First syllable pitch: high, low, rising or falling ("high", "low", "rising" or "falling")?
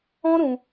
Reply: high